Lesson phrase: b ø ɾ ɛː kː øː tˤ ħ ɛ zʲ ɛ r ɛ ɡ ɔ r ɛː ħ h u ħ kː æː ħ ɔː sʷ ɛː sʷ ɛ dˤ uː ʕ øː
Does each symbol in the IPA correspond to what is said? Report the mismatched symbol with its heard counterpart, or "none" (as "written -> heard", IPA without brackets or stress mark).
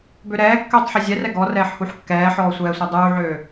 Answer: æː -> ɛː